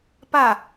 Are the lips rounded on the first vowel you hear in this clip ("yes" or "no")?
no